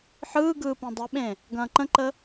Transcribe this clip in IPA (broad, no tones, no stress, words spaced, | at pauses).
ħɯːɡɯː pẽdˤeɓẽ | ɡɐ̃ːǃə̃ǃə